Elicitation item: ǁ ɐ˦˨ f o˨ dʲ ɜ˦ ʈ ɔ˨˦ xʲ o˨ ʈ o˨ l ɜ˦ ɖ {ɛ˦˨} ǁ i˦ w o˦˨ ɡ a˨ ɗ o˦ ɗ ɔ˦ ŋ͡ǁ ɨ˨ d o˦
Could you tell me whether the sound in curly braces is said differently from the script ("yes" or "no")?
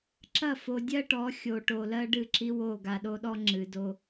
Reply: yes